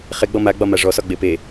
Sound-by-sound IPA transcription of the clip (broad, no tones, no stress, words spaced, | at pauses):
χeɡ͡bɔ maɡ͡bɒma ʐɔsɒɡ͡be pe